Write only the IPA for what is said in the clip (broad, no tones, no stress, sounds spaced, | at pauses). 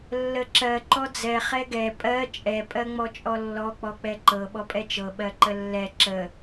lː ə ǁ ɜ ǃ ɔ d͡z ɛ χ ɛ ɡ ɛ pʼ ɜ t͡ʃʼ ɛ pʼ ɜ ŋ͡m ɔ t͡ʃʼ ɔ lː ɔ k͡p ɔ k͡p ɛ ǃ ɤ ɓ ɔ pʼ ɛ t͡ʃ ɤ ɓ ɜ ǃ ə lː ɛ ǁ ə